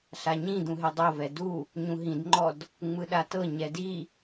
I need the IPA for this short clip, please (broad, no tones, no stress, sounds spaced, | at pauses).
ɬ a ɲ ĩ d̪ ũ ɦ e dˤ o v ɛ d u | ɲ ũ ɦ ĩ d ŋ͡ǃ ɔ d | ŋ͡m ɯ ɗ a t ɤ ɲ ɛ d i